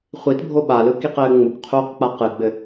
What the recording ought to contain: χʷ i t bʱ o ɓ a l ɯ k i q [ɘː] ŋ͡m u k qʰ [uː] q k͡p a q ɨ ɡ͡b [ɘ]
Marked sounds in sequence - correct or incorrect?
correct, correct, correct

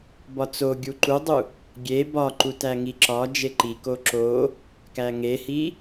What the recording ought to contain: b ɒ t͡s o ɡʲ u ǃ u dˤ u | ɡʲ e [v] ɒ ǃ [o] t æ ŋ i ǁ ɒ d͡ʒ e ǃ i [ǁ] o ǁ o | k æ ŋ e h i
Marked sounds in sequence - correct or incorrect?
incorrect, incorrect, incorrect

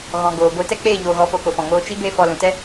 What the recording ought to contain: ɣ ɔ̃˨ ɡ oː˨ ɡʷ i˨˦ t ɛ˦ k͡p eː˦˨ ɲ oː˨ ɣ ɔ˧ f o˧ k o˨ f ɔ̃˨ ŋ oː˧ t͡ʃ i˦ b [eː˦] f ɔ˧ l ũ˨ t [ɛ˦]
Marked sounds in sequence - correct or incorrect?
correct, correct

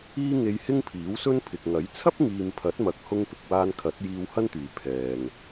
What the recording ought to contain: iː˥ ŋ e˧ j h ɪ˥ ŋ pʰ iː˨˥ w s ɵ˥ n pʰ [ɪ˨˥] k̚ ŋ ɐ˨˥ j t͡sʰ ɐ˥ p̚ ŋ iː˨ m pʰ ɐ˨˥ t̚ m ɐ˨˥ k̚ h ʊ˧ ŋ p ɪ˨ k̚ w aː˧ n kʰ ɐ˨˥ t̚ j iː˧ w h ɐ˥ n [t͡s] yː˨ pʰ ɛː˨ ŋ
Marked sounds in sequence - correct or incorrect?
incorrect, incorrect

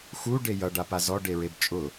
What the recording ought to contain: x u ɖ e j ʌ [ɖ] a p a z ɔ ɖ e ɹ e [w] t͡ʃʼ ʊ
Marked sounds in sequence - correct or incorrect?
correct, incorrect

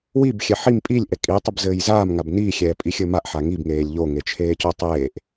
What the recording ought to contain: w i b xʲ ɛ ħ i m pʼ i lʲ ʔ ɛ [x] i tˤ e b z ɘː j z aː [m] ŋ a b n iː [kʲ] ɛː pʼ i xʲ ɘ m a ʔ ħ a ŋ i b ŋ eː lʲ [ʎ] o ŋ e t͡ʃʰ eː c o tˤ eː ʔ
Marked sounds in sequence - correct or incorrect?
incorrect, correct, incorrect, correct

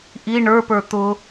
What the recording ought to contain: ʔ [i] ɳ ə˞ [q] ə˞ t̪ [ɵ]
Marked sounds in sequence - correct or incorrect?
correct, incorrect, incorrect

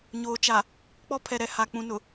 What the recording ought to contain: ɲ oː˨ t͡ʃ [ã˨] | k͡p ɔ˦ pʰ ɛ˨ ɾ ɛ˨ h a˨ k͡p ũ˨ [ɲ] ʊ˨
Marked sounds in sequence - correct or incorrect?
incorrect, incorrect

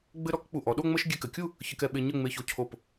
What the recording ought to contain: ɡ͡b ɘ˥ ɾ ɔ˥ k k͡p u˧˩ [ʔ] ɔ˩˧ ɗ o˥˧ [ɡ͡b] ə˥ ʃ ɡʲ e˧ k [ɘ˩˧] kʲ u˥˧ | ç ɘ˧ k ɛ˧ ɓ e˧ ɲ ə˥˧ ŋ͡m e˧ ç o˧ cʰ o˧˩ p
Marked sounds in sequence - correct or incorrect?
correct, incorrect, correct

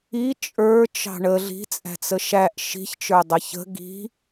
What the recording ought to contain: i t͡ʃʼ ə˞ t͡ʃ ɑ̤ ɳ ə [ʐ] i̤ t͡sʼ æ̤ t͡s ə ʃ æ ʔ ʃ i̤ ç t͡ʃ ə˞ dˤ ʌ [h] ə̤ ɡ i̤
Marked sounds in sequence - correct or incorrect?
incorrect, incorrect

